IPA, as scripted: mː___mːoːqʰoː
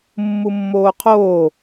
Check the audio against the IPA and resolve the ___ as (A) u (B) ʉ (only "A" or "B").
A